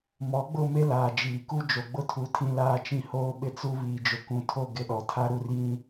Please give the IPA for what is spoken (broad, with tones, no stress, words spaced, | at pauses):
mɔ˨˦ɡ͡bʊ˦˨ me˦laː˨ d͡ʒiː˨ku˦ d͡ʒo˨ɡ͡bʊ˦tʰu˨ tʰĩ˦laː˦t͡ʃĩ˦ hoː˦ɓɪ˦t͡su˦ βiː˨d͡ʒʊ˨kũ˨tʰo˦˨ ɡɪ˦ɗɔ˨ tʰa˦ɾu˦˨rjĩ˦